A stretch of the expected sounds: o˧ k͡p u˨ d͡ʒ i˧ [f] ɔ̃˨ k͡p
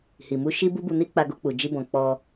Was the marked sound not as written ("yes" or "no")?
yes